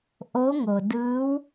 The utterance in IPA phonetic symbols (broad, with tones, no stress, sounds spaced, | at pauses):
ʔ o˧˥ ŋ o˩ d ɯː˧˥ w